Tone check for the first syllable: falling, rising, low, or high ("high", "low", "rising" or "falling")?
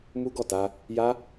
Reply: high